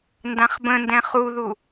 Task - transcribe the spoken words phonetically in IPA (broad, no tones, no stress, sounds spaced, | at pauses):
n d ã χ b ə̃ n d ɛ̃ χ u ð u